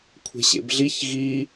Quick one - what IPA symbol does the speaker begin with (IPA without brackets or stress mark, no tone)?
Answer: kʷʰ